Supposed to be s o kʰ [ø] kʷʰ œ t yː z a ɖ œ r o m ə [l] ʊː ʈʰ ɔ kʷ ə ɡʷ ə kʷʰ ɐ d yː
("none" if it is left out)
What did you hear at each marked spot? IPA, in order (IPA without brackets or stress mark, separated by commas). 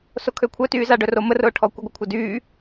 ø, r